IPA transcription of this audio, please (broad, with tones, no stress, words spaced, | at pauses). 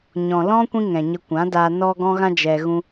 ɲɔ̃˨lɔ̃˦ kʷĩ˦ŋɛ̃˨ɲə˧ kʷã˨˦daː˧ nɔ˧ ɡɔ̃˦ɣã˦ d͡ʒɛ˧ ɣũ˦